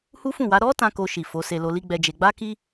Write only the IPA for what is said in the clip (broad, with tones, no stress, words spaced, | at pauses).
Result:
hu˦fũ˦˨wa˨˦ ɾɔ˦ tã˦ko˧ʃi˨ fo˨˦se˧ lo˧li˦ɡ͡bɛ˧d͡ʒe˧ ɡ͡ba˦ki˦